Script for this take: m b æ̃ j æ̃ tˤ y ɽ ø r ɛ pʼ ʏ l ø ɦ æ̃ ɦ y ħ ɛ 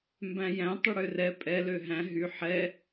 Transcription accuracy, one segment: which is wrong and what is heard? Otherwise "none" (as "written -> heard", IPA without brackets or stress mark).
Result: ʏ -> ɛ